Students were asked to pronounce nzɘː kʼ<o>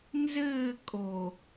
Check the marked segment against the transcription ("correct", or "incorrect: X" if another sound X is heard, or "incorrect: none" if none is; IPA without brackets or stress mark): correct